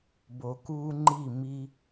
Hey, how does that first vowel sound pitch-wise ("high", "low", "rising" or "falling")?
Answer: low